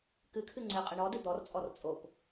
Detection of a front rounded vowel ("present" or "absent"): absent